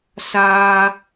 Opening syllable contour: high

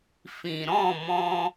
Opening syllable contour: low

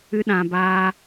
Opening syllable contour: high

